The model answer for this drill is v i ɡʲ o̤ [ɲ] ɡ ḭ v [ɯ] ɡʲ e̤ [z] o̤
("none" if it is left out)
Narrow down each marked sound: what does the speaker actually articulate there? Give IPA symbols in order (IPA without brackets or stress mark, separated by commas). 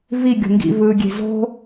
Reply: ŋ, ɯ, z